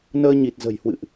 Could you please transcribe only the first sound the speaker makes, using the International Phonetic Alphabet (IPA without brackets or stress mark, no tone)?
n